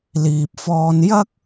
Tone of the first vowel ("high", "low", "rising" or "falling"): low